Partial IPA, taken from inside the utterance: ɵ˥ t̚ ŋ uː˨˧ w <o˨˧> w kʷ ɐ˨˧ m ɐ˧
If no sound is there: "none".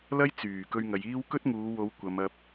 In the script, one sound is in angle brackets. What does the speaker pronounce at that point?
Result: o˨˧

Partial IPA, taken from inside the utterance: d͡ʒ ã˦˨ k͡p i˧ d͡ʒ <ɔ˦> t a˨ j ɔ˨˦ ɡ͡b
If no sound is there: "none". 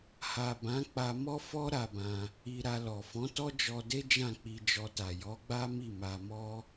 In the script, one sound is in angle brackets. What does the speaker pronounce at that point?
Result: ɔ˧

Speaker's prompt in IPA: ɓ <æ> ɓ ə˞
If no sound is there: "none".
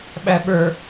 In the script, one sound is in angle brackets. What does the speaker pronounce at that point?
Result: æ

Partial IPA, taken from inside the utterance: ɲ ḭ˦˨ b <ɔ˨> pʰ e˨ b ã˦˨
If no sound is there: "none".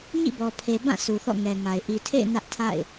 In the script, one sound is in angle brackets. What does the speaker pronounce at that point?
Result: ɔ˨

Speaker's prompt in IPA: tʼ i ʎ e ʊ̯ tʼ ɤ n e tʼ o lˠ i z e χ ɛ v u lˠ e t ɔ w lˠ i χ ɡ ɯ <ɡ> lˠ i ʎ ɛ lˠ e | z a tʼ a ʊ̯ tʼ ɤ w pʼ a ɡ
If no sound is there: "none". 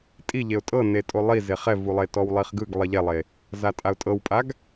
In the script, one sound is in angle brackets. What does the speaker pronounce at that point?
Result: ɡ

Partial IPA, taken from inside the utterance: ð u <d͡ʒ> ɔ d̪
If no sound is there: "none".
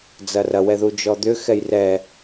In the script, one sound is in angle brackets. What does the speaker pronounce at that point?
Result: d͡ʒ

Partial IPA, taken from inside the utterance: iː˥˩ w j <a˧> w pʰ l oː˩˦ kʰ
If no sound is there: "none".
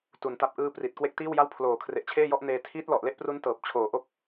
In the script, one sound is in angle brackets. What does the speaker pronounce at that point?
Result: a˥˩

